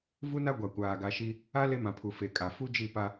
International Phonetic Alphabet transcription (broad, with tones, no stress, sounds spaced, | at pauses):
v u˦ n a˦ ɡʷ a˨ kʷ aː˨ ɡ a˨ ʃ i˦ | a˦ l e˦ m ã˨ pʰ u˨ f e˨ kʼ a˨ f u˦ d͡ʒ i˦˨ p a˦